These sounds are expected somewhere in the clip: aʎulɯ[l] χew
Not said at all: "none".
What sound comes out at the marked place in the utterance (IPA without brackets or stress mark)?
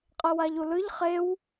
ʎ